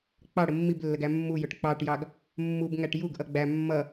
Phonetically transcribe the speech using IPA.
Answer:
k͡pɑɽə mːiblːəɡæ mːujʊʈ k͡pɑʈjɑɡ | mːubŋæʈ juɡʔʌ ɡ͡bæ mːʌ

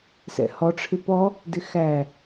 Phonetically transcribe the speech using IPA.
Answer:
sɛ̰hɔ ʈ͡ʂʰɪpɔ | dɪxæ

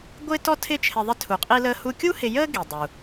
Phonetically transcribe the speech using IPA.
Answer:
ɡʷɪː˥tɔ˥ tʰɪː˥t͡ʃʰɪ˧ ðˤɪ˧tʰu˩qʼi˧ləː˧ hu˧kʲu˥ hɪ˧jəː˥ ɡi˩ dˤu˩

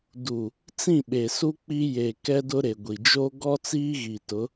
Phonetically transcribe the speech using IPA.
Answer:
du˨ | t͡sĩ˦˨ɓe˨su˦ k͡pi˦ je˨ kɛ˦dʊ˦ ɾe˨ɡʷi˨d͡ʒo˦ ɡɔ˦t͡siː˦ɣi˨tʊ˨˦

